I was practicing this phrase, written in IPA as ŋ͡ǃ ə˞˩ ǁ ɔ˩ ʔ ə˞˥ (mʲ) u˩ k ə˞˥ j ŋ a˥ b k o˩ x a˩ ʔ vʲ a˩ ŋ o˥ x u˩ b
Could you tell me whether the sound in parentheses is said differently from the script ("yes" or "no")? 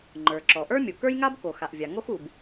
no